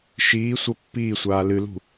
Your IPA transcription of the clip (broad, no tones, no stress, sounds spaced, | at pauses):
ʃ iː sʷ ə pː iː sʷ aː l ɨ l ṳ